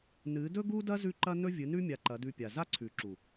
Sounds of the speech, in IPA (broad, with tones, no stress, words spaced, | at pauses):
nɨ˨˦dɵ˦ɡu˦dɐ˦ zʉ˦ǃɐ˦ nɵ˦vʲɨ˨˦nʉ˦ mʲa˧ǃɐ˨˦dʉ˧pʲa˨ za˦ǀʰʉ˨ǁu˨